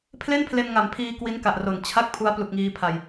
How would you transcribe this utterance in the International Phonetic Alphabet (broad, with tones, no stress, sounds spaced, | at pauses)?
pʰ l e˥˩ n pʰ l e˧ n ŋ a˨˩ m pʰ iː˧ k w i˦˥ n k a˨˩ ʔ r o˨˩ n t͡ɕʰ a˥˩ k̚ pʰ u˦˥ a̯ p l u˨˩ k̚ ŋ iː˧ pʰ a˧ j